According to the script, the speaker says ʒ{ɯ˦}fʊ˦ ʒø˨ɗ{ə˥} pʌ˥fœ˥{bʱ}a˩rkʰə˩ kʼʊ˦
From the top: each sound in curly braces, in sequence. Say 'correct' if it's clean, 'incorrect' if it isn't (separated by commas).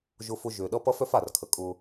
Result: incorrect, incorrect, incorrect